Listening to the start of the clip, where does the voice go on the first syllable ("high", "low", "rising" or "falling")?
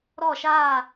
falling